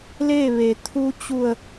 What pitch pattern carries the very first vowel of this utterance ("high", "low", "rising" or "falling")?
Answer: falling